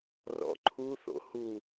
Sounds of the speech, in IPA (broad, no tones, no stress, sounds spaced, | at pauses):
r ɔ̰ ǃʰ u θ o̰ h u